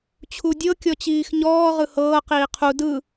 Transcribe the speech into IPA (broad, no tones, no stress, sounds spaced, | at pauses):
t͡ɕʰ u dʲ ɤ kʲ ɔ t͡ɕ iː x ɲ ɔː ʁ ɯ h ɤː q iː qʰ u d ɯ